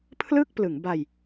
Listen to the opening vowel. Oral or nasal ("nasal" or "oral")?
oral